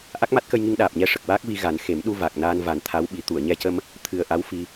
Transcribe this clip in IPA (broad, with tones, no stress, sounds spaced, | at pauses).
ʔ a˦˥ k̚ m a˦˥ t̚ k ə˧ j ŋ i˧ ŋ ɗ aː˨˩ p̚ ɲ ɛ˧˥ ʂ ə˨˩ k̚ w aː˦˥ k̚ v i˧ ɣ a˨˩˦ n x e˨˩˦ m ɗ u˧ v a˨˩ k̚ n aː˧ n v a˨˩˦ n t̪ʰ a˧˥ w ɓ i˨˩˦ t̪ u˨˩˨ ə̯ ɲ ɛ˧ c ə˧ m | t̪ʰ ɨ˨˩ ə̯ ʔ a˧˥ w f i˧